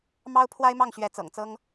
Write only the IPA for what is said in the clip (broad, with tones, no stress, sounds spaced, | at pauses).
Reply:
m ɑ˥ ʊ̯ pʰ w a˥ ɪ̯ m ɑ˥˩ ŋ ɕ ɥ ɛ˧˥ t͡s ɤ̰˨˩ ŋ t͡s ɤ˥ ŋ